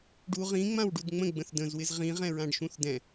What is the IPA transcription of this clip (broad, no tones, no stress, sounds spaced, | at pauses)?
ɖ u ʁ ĩ ŋ͡m ã w ɖ u d ŋ͡m ə̃ ɡ͡b ə̃ θ d ə̃ z w ɪ z ʁ ĩ ʁ ɛ̃ ɹ ã ɖ ʃ ũ θ d ɛ̃